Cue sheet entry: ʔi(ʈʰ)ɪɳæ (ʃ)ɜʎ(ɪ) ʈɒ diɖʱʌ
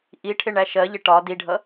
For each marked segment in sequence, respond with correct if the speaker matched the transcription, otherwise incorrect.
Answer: correct, correct, correct

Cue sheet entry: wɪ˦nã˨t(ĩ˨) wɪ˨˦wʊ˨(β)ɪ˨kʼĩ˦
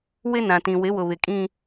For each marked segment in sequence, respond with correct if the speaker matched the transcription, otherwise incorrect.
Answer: correct, correct

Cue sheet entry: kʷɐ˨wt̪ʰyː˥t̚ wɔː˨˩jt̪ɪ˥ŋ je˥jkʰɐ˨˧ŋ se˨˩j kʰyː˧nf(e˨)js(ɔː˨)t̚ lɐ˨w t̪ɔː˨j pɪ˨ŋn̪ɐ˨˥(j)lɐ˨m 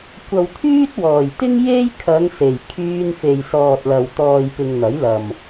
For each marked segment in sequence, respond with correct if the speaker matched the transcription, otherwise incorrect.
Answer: correct, correct, correct

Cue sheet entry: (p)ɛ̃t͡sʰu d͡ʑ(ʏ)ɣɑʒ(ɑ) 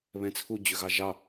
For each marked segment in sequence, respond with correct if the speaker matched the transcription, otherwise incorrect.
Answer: incorrect, correct, correct

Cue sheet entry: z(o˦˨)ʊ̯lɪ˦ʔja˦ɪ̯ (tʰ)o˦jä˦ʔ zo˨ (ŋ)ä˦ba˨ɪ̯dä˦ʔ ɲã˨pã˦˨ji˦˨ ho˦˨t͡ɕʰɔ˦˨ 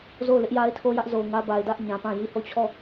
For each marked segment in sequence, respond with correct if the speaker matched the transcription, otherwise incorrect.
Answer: correct, correct, correct

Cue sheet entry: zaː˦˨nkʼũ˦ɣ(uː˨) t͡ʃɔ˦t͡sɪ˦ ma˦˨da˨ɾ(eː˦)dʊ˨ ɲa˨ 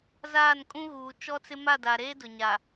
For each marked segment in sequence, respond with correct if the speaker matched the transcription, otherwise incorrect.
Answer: correct, correct

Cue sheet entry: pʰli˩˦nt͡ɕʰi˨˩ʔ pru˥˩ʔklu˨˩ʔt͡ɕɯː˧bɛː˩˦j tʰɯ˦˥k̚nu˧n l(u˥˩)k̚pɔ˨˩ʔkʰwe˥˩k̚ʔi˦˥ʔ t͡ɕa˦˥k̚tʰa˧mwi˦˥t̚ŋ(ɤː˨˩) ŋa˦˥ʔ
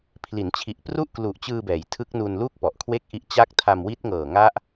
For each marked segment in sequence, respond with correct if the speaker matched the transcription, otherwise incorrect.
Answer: correct, correct

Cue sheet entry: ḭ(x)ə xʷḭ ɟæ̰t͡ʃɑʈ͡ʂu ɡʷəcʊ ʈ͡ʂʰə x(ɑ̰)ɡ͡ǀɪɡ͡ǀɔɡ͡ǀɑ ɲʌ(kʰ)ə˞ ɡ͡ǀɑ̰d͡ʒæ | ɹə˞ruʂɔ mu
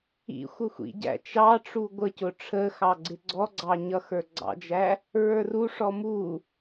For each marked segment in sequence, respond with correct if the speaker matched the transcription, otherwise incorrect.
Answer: incorrect, incorrect, incorrect

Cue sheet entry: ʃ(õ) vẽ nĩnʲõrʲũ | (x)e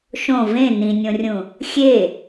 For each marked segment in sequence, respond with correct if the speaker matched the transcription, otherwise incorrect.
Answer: correct, incorrect

